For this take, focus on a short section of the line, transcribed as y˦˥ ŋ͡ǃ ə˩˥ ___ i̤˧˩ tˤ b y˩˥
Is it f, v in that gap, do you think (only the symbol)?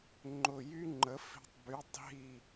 f